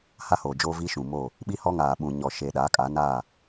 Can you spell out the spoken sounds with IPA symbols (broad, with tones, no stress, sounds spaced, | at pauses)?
h a˦ h oː˨ d͡ʒ oː˦ v i˦ ʃ ũ˨ m o˦˨ | ɓ i˦ h ɔ˦ ŋ aː˨ ɓ ũ˨ ɲ ɔ˨ ʃ eː˨ ɗ aː˨˦ kʼ a˨˦ n a˦˨